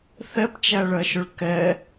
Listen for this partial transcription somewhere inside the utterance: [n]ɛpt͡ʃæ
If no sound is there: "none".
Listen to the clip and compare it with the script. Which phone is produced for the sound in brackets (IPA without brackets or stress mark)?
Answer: θ